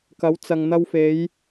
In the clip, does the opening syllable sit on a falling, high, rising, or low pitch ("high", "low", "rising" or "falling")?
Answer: rising